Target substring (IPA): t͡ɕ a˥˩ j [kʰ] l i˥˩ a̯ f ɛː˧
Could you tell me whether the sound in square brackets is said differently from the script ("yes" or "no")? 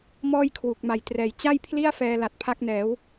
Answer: yes